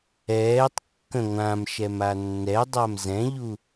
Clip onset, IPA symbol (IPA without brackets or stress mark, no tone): ɛː